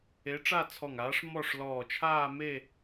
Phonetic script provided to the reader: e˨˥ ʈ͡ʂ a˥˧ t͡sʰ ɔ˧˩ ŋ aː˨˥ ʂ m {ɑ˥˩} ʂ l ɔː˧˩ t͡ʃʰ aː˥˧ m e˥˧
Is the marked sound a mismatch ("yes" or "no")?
yes